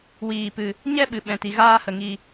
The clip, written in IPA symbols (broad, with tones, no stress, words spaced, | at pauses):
wiː˧pɨ˧ | ɲɛ˦ɓɨ˨ɓɛ̃˨ti˨ ɣaː˦hə˧ ŋi˧